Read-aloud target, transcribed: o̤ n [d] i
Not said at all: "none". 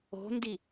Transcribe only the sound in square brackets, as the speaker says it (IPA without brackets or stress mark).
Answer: d